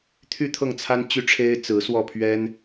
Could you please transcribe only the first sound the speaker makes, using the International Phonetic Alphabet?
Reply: t̪ʰ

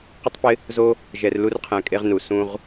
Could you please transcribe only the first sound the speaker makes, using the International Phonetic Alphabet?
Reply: q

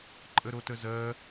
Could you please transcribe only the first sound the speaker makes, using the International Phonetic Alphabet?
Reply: ǃʼ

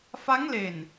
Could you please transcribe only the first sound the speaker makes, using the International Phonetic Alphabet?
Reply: f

